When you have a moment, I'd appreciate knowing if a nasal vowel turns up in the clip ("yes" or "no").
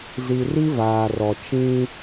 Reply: yes